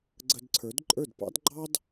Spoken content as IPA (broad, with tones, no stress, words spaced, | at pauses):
ɡ͡ǀə˧dǀʰə˞˩˥d ǃʼə˞˥˩dpɑ̰˥d ɡ͡ǃɑ˥d